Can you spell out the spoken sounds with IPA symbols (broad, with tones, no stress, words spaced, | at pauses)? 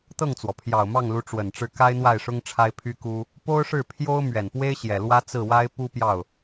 t̪ɤ˥˩ŋt͡swɔ˩pʰjɑ˨˩ʊ̯ mɑ˥˩ŋlu˧˥ ʈ͡ʂwə˨˩nʈ͡ʂɻ̩˥˩ ka˥ɪ̯n̪wa˥˩ɪ̯ʂʊ˥ŋ ʈ͡ʂʰa˥ɪ̯pʰy˥ku˥ | po˥ʊ̯ʂɻ̩˥˩pʰjo˥ʊ̯ mɥɛ˨˩npwe˥ɪ̯ ɕjɛ˨˩lwä˥ t͡sɹ̩˥˩wa˥ɪ̯ pu˥pjɑ˥˩ʊ̯